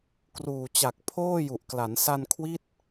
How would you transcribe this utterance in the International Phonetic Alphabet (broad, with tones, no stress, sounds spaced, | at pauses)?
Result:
k r uː˨˩ t͡ɕ a˨˩ k̚ pʰ oː˥˩ j u˨˩ ʔ k l a˩˦ n s a˧ n kʰ w i˦˥ t̚